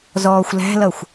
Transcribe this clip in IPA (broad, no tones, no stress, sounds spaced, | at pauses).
z ɔː xʷ l æ̤ l ʌ xʷ